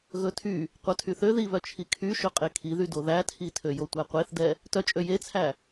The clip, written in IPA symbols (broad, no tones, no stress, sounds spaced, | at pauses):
ɣ ɵ tʰ y | qʷ œ tʰ y θ ø ð i β œ t͡ʃʰ i kʰ y ʃ ɵ qʼ e kʰ i ð y d o ð æ tʰ i tʰ ø j o tʷ æ qʷ e θ d ɛ | t œ t͡ʃʼ ø j e t͡sʰ æ